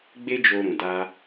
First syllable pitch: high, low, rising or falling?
high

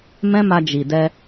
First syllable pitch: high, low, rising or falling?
high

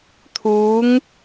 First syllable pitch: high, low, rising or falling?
rising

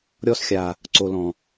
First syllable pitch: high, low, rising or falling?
high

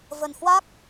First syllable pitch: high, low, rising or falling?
low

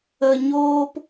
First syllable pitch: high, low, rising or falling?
low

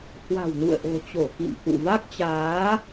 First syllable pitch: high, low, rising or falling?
low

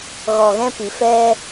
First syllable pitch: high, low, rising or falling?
low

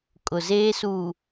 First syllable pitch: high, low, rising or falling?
low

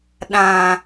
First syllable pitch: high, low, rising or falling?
low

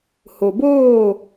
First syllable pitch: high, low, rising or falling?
low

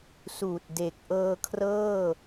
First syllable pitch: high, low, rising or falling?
low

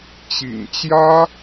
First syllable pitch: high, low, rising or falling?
low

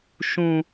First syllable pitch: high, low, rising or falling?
low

